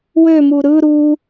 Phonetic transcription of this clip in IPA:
w ø m u ɾ ɯ ɾ u

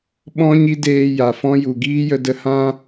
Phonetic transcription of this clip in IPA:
ɓ ɔ̃˦ ɲ i˦ d eː˧ j a˨ f ɔ̃˦ j u˨ ɡ iː˦ j ə˧ d ə˧ h ã˦

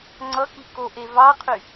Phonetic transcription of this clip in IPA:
ŋ͡ǀ ʌ k i k o ʔ e v ɑ qʰ y

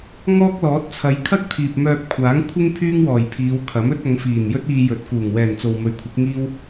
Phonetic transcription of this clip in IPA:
ŋ ɔː˥ k̚ l ɔː˨˥ t̚ t͡sʰ ɐ˨˧ j kʰ ɐ˥ k̚ t̪ʰ iː˨ p̚ m œː˧ p̚ kʷʰ aː˨˥ ŋ kʷʰ ɪ˥ ŋ pʰ yː˥ ŋ w ɔː˨˩ j pʰ iː˨˧ w kʰ ɐ˨˥ m ɵ˥ t̚ ɐ˨˧ ŋ f iː˨˩ n j ɵ˥ t̚ iː˧ j ɵ˨˥ t̚ k uː˨˩ ŋ w ɛː˨˩ n t͡s o˨ w m ɵ˨˧ ɥ kʷʰ ɪ˨˥ k̚ ŋ iː˥ w

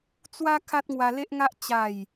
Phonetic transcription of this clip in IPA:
t͡s w a˦ kʰ a˦ t̚ ŋ w a˧ l e˦ ʔ ŋ a˦ ʔ t͡ɕ a˥˧ j

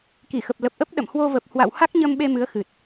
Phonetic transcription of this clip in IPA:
k i˧˩ x ə˨˩ p̚ l ə˨˩ p̚ ʔ ə˦˥ p̚ ɗ ə̰˧˨ m h w o˧ v ə˨˩ p̚ h w a̰˧˨ w h a˦˥ k̚ ɲ ə˧ m ɓ e˧ m ɨ˨˦ ə̯ x ɨ˨˩ t̚

